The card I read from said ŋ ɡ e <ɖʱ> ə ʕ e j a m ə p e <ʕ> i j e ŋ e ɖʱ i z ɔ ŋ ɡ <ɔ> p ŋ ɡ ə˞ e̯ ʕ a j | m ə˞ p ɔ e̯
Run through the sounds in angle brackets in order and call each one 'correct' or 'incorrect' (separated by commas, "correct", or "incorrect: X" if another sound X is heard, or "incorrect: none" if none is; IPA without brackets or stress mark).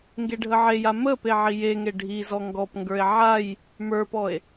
correct, correct, correct